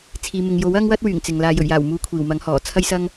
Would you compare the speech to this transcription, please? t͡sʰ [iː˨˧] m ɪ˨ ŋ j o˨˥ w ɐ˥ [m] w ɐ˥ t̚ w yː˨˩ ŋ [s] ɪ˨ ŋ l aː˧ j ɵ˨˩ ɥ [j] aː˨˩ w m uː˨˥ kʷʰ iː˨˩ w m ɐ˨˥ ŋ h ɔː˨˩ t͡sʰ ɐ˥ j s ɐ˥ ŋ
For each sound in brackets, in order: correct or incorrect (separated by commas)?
incorrect, incorrect, incorrect, correct